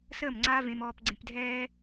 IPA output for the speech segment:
səː˦˨mŋ͡ǀaː˦vẽ˧m ɔː˧p ɡ͡ǀẽ˧pdʱɛː˦

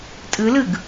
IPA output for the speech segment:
tʼɯlɯɡ

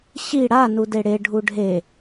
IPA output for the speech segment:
ɕi ɽa nudeɽe ɖʱuɖʱe

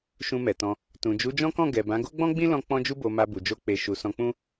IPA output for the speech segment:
ʃũ˧mɛ˨tɔ̃˧ | tũ˨d͡ʒu˨˦d͡ʒɔ̃˦kɔ̃˦˨ ɡɛ˨bã˨˦ ɡo˦ɡ͡bɔ̃˦ɡ͡bĩ˦lɔ̃˧ k͡pɔ̃˧d͡ʒu˧bo˨ ma˧bu˨d͡ʒo˧ k͡pe˨ ʃu˨sɔ̃˧k͡pũ˦

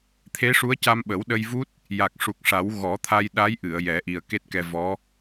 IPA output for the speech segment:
t̪ʰe˧˥ʂu˧˥ə̯ca˧m ɓə˨˩˦wɗə˧jvu˦˥t̚ | ja˨˩k̚ʂu˨˩k̚ʂa˨˩˦w ɣɔ˨˩˦t̪ʰa˧jɗa˧˥jʔɨ˨˩˨ə̯ jɛ˨˩˦ʔi˨˩ə̯ke˦˥t̚kɛ˧ vɔ˧˥

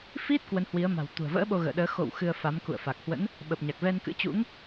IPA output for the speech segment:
fi˦˥t̚ kwə˨˦nhwi˨˦ə̯ ma̤˨˩wt̪ṳ˨˩ə̯və̰ː˧˥ ɓo˧ɣə̰ː˧˨ɗəː˨˦ xo̰˧˨w xɨ˧ə̯fa˨˦m kṵ˧˨ə̯fa˨˩k̚hwə̰˧˥n | ɓə˨˩p̚ɲa˨˩k̚ vɛ˧nkɨ̰˧˥t͡ɕṵ˧˥ŋ

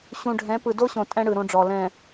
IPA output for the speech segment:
ɕũ˨ɖʱɛ̃˨˦pɯ˨ do˦ɕõ˨ tʼɛ̃˦ɽɯ˨ ɾõ˦ɖ͡ʐɔ˨ lɛ̃˨

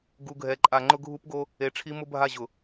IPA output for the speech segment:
ɡu˨ɡʱɛ˨ǃʼa˨ ŋ͡ǃʊ˦ɡʱu˦pɡo˦ | e˨ʈ͡ʂʰi˦ mʊ˦bʱa˦˨ʑʊ˨

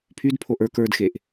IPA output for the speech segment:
pʰydpʰoʔ ə˞k ə˞dxeʔ

